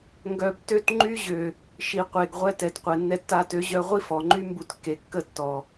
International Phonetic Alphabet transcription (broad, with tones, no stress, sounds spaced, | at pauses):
ŋ ɡ œ˨ b t ø˦ t ŋ͡ǃ y˦ ʑ ø˨ | ʃ i˨ qʷ e˨ ɡ ʁʷ ɛ˧ t ɛ˨ t qʷ ɛ˨ nː ɛ˦ tː a˧ t ø˨˦ ʑ œ˧ ʁʷ i˦ f ɔ˨ ŋ͡ǃ y˦ m b u˧ t kː e˨ kː ə˦˨ tː ɔ˨